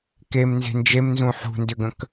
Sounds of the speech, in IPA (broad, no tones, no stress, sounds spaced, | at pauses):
k e m n z e̤ n d͡ʒ e m n z ũ ħ ṳ n d ʏ ɡ ə̃ k